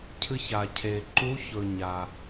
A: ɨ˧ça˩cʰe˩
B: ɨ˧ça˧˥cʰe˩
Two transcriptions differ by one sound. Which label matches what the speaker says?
A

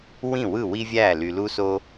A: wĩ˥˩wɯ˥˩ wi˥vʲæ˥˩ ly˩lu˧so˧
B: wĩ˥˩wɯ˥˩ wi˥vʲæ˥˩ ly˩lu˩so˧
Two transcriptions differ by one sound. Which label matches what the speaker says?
A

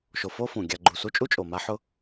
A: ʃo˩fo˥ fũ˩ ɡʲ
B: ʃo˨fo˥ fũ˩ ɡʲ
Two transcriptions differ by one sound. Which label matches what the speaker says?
B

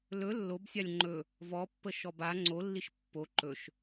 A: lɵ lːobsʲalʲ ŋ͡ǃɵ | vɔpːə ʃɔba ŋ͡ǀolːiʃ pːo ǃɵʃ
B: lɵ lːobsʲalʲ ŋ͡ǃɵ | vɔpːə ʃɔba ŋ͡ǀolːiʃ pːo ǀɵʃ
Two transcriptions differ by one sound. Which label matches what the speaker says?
A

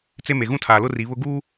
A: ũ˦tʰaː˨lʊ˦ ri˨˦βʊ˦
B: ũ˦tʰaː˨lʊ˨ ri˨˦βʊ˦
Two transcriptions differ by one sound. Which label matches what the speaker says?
A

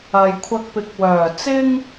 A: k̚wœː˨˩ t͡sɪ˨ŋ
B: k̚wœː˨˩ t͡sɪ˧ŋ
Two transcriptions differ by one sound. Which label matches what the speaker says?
B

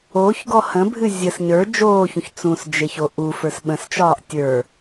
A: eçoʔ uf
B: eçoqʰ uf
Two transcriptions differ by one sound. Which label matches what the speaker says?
A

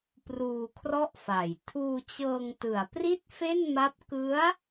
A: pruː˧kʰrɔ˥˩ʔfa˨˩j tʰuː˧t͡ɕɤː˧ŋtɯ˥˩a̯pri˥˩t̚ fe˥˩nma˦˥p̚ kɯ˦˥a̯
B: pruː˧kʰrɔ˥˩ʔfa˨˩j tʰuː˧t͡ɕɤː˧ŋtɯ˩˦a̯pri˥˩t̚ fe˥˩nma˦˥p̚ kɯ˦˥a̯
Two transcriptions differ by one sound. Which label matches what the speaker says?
B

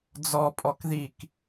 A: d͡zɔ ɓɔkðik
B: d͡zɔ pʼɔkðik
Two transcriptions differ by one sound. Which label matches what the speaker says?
B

